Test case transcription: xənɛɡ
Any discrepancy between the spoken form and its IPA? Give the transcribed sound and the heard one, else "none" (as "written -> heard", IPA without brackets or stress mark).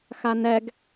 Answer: ə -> a